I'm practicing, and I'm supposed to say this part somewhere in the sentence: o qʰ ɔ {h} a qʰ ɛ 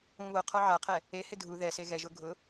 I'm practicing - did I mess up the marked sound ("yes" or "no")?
yes